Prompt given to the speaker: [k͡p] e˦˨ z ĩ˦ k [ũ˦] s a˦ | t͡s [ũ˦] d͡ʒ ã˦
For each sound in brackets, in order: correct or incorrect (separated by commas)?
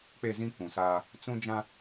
correct, incorrect, correct